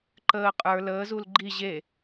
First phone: ǃ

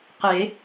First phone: q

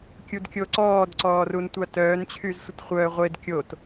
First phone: kʲ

